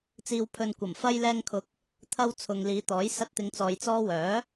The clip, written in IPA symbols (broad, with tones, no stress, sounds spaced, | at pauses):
t͡s iː˨ w pʰ ɵ˨ n kʷ ɐ˨˩ m f ɐ˧ j l ɛː˧ ŋ kʰ ʊ˨˥ k̚ | t̪ʰ ɐ˧ w t͡sʰ ʊ˨ ŋ l iː˨˧ t̪ ɔː˨˥ j s ɐ˧ t̚ t̪ ɪ˨˧ ŋ t͡s ɔː˨ j t͡s ɔː˥ w œː˨˥